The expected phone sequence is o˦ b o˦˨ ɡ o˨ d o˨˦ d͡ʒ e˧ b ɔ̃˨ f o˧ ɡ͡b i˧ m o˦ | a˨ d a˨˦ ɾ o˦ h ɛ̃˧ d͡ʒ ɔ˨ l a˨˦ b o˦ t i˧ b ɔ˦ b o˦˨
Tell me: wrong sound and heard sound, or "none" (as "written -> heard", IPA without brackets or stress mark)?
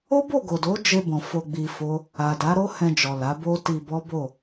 m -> f